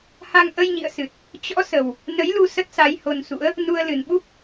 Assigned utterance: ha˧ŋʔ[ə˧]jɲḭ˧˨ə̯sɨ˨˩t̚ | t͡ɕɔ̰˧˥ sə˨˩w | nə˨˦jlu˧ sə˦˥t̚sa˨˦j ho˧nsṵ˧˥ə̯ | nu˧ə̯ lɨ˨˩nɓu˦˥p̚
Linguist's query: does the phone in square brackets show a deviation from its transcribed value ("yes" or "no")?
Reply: no